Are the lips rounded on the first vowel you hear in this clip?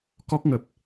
yes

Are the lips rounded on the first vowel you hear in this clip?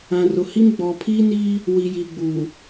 no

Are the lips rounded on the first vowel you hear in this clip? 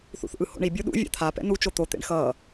yes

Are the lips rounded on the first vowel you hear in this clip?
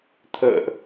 no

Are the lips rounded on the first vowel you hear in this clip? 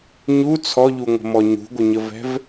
yes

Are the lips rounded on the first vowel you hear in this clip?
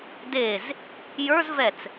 no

